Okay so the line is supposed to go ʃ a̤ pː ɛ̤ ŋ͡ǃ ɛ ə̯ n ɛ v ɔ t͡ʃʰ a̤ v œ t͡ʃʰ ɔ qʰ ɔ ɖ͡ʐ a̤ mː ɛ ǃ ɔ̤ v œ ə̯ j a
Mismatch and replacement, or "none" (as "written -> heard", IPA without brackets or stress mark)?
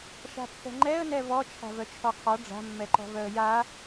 none